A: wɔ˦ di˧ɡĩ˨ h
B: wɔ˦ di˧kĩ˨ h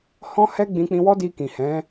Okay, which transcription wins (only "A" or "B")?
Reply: B